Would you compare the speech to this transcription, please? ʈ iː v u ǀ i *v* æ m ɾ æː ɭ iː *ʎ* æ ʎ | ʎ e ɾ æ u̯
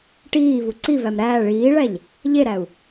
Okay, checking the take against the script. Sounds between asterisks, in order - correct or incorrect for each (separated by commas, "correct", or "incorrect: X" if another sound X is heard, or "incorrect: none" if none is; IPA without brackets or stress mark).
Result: correct, incorrect: ɭ